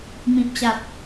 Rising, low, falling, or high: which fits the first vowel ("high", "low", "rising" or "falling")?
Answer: low